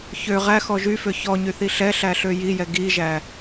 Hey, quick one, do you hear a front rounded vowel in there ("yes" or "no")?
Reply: yes